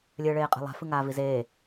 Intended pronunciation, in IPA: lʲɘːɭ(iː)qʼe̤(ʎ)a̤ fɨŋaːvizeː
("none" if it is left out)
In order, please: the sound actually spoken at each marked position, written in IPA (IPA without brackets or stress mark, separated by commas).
eː, lˠ